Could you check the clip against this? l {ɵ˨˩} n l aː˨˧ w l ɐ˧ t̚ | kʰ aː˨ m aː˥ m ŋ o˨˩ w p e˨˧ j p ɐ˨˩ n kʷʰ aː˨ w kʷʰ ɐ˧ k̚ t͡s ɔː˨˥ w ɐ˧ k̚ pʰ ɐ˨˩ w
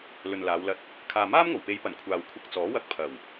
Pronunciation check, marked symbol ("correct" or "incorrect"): incorrect